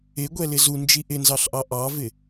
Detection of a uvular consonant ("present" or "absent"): absent